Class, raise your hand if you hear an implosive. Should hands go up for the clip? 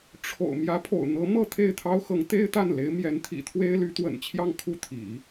no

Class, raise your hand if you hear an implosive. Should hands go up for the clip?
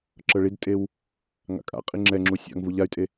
no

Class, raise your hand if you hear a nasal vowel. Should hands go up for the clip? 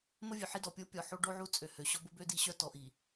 no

